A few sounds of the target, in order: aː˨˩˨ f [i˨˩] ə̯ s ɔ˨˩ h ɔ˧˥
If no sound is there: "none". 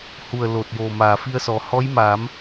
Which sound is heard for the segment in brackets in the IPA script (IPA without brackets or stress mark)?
i˧